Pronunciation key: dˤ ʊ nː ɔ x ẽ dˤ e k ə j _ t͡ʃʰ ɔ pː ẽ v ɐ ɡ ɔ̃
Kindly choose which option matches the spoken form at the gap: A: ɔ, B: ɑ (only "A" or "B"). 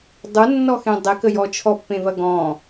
A